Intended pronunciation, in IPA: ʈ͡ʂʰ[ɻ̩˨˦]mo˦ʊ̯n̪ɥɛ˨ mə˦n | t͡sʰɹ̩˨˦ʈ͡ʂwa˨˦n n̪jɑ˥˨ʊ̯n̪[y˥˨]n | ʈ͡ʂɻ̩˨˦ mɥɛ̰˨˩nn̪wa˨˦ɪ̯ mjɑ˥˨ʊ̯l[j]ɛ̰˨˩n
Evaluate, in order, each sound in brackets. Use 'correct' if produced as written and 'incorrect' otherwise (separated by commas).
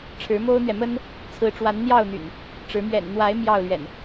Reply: correct, incorrect, incorrect